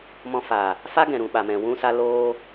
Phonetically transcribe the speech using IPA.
mɔ̃˧faː˨ | fa˦ ɡɛ̃˨ɾũ˨ɓa˨mɛ̃˨ wũ˧sa˧ loː˧

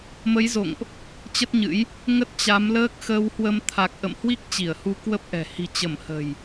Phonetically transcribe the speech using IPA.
mə˨˦jzo̰˧˨ŋʔ | t͡ɕə˦˥t̚ɲɨ̰˧˥j | ŋə˦˥t̚t͡ɕa˨˦mləː˦˥k̚ xəː˧whwə˧m t̪ʰa˨˩k̚ʔə̰˧˨mhwi˦˥k̚ t͡ɕi˧˩ə̯hu˧ kwə˦˥p̚ʔɛ̤˨˩ hi̤˨˩t͡ɕə˧˩m hə̤˨˩j

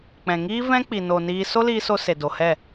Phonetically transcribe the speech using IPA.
k͡pɛ̃˨ŋiː˦vɛ̃˦k͡pi˨ no˨niː˧ so˦liː˧so˧ se˨do˨hɛ˦˨

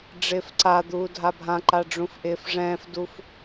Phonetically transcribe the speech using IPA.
ɖ͡ʐɪːfǀad̪uː dʱabʱãǃa ɖ͡ʐũfʔɪːfʐɛ̃ːfduf

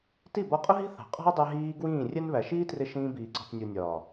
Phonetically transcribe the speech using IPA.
ti˦˨bɒ˧qʼʊ˦ɦi̤˦ θɑ̤˨qʼɔ̤˦ɐ̯ dˤɛ˧ɦiː˧ ɡwĩː˦˨rʲɛ˦n βæ˨ʃiː˦trɪ˧ ʃĩː˧biː˨ǀɔ̤˨tnʲu˨ nʲɒː˨

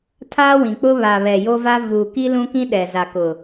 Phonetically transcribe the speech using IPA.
tʰaː˦wĩ˨k͡pʊ˦ βa˨βɛ˨ jo˦va˦ vuː˨ ki˦lũ˦kĩ˦ɗɛ˨ za˨kʊ˨

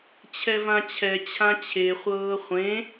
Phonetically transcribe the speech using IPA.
t͡ɕʰɛvãt͡ɕʰɛ t͡ɕʰãt͡ɕʰeχʷɤː χʷẽ

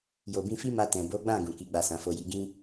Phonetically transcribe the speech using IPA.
jo˨bĩ˧fi˦ma˧ tɛ̃˨bo˨˦ɡ͡bã˦˨ ɡũ˨ki˨˦ɡ͡ba˧ sã˨fo˨ji˨˦ ɡĩ˦

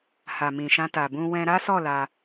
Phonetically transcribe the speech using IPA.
ha˨mĩ˨ʃã˧ ta˨bũ˧wɛ̃˧ ɾa˦sɔ˦˨ la˧

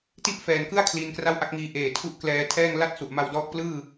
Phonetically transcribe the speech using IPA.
ti˥˩ʔfɛː˨˩nkɯ˥˩a̯ kʰliː˧nkra˥˩wʔa˦˥k̚ŋiː˧ ʔeː˨˩tʰu˦˥ʔ klɛː˧tʰɛː˥˩ŋ la˥˩t̚su˨˩ʔma˧wdɔː˦˥k̚ plɯː˥˩

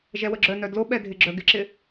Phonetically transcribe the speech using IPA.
ʒɛwəɡ͡ǁœnœ dloɓɛ dʱɪɡ͡ǁœ ɡɪǁɪ

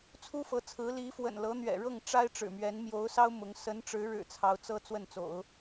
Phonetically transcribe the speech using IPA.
t͡sʰu˥fɤ˧˥t͡sʰɹ̩˧˥ li˧˥ fwə̰˨˩nlɤ˧˥n̪ɥɛ̰˨˩ ɻɤ˥˩ŋʈ͡ʂa˥ɪ̯ ʈ͡ʂɻ̩˨˩mɥɛ˧˥n mjo˧˥ʊ̯sɑ˥ʊ̯ mʊ˧˥ŋ sə˧˥nʈ͡ʂɻ̩˧˥ɻɻ̩˨˩ t͡sʰɑ˧˥ʊ̯t͡sɤ˥ t͡swə˥˩nt͡so̰˨˩˦ʊ̯

